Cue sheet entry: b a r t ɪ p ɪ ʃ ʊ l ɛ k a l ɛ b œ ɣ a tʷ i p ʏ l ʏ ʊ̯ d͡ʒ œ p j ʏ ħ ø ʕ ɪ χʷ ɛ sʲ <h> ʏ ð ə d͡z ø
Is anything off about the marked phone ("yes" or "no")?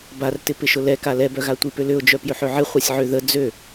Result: yes